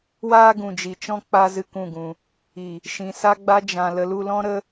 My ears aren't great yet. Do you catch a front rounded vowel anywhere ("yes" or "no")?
no